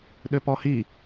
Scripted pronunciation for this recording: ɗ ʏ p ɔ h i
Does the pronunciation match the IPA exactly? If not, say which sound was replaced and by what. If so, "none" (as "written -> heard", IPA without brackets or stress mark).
none